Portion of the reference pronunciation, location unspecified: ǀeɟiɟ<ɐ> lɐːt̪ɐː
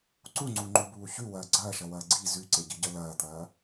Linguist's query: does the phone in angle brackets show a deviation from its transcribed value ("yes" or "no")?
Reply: no